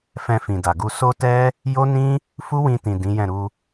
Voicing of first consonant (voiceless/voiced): voiceless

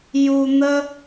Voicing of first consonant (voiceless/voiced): voiced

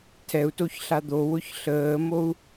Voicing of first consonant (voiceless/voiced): voiceless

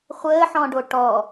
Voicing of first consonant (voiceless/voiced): voiceless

